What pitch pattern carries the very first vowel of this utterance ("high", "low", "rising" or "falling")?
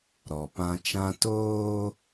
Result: low